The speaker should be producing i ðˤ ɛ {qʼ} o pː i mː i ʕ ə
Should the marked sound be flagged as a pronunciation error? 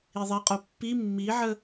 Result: no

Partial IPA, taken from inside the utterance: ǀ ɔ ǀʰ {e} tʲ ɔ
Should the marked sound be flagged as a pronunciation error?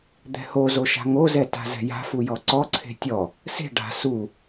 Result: yes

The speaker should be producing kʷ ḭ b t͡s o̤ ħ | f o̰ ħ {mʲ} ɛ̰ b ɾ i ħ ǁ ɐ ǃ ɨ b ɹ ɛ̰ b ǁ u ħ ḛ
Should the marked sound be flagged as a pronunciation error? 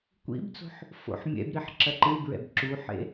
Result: no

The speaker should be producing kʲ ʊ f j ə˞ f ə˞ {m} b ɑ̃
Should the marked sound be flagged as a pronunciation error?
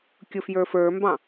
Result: no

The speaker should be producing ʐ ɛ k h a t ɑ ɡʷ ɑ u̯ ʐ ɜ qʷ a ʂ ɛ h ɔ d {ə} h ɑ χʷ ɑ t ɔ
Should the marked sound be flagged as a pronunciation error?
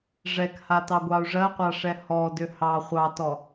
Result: yes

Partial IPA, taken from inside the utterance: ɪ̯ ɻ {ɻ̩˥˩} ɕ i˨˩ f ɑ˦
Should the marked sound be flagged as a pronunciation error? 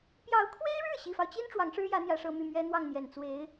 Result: no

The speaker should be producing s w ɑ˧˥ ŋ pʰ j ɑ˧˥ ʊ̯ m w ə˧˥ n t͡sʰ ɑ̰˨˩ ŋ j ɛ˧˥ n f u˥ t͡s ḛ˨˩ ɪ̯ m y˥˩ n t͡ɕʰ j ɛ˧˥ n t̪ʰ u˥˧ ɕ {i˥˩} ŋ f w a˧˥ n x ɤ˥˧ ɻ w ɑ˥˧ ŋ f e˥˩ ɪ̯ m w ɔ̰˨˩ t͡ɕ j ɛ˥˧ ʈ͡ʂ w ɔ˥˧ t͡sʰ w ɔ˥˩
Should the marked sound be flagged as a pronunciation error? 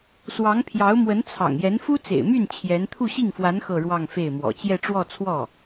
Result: no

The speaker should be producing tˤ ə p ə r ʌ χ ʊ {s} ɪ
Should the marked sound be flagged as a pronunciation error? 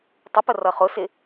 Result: no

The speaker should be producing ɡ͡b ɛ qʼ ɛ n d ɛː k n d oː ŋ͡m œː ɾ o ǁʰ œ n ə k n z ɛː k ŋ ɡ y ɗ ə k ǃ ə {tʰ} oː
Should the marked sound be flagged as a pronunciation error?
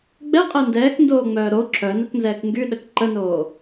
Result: yes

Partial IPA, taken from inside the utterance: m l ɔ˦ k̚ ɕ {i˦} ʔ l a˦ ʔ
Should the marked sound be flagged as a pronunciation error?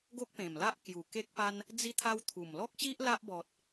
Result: no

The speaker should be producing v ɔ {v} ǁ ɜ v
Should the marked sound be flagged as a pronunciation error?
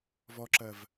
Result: yes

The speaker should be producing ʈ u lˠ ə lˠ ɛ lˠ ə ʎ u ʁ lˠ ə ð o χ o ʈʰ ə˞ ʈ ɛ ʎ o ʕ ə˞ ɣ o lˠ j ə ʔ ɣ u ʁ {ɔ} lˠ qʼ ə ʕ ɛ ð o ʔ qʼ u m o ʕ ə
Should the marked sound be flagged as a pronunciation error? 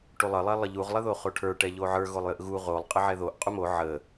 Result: yes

